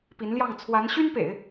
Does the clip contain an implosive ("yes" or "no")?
no